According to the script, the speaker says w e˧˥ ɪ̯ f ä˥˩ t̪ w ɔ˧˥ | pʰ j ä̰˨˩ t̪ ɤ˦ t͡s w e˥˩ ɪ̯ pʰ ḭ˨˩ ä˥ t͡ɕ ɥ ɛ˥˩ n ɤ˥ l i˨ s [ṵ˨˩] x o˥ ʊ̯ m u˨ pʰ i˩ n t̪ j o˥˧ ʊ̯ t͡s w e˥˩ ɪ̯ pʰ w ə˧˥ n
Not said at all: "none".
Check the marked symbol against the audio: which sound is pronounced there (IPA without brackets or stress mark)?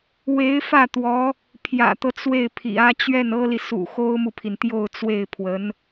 ṵ˨˩